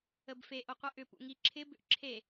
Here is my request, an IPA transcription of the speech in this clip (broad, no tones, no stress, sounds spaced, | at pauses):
ə b f e ʔ o qʷ ʌ ʔ ʏ p ṵ ŋ i ǁʰ ɪ b ʏ ʔ ǁʰ e